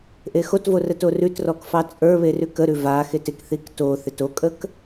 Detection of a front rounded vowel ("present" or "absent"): absent